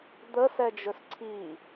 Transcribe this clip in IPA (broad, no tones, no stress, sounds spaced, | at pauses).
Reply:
d̪ ə s ɛ d͡ʒ ɵ s ǀʰ i